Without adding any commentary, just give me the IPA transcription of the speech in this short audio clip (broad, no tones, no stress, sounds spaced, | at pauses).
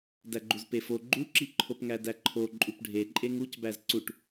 d æ ɡ͡ǃ u z p e f o ɡ͡ǃ u ǁ i ǃʰ o p ŋ æ d æ ǃʰ o ǃʼ u p ɖʱ e ǃʼ e ŋ u c b æ z ǀ u ʈ